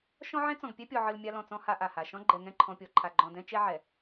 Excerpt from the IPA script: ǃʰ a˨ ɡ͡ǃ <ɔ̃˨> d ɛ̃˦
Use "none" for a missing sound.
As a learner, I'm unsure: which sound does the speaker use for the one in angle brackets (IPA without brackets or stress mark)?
ɔ̃˨